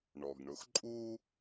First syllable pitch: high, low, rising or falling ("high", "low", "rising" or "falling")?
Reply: low